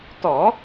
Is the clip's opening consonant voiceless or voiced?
voiceless